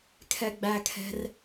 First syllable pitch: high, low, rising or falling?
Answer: low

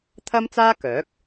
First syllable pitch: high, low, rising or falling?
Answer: high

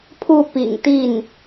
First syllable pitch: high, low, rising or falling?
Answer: falling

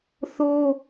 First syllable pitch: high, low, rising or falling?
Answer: high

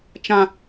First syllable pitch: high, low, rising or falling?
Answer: high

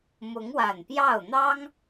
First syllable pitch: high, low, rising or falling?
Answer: rising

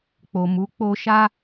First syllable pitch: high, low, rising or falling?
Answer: low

